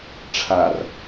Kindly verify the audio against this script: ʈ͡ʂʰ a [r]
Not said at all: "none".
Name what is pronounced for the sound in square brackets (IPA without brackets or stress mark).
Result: r